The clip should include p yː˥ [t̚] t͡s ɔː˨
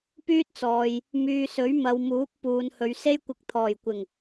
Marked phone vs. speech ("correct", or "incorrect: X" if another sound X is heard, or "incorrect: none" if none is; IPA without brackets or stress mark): correct